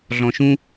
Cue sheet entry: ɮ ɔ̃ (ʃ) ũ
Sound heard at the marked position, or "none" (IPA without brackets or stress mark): ʃ